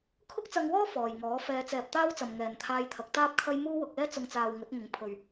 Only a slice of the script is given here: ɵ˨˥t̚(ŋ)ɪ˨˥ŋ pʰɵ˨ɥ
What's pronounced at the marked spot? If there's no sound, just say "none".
ŋ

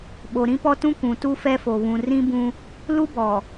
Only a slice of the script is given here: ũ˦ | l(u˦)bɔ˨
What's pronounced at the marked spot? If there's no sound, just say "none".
u˦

